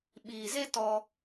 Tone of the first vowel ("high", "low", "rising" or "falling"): low